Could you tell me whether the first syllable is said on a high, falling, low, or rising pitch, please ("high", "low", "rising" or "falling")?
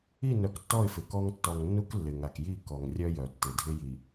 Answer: falling